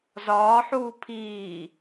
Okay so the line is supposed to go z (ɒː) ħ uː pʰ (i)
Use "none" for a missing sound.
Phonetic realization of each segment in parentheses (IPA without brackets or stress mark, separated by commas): ɒː, iː